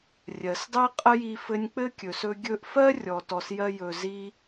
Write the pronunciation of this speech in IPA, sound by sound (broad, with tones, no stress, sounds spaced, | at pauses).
rʲ ɜ˩ s dˤ i˥ qʼ ə˥ j i˧ f ɘ˧ nʲ k͡p ɘ˥ kʲ ɵ˩ s ɵ˧ ɡʲ ɵ˧ ʔ f ɜ˥ rʲ ɔ˩ t ɔ˩ s j ɜ˧ j ɵ˩ z i˧